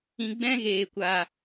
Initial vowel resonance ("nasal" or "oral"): nasal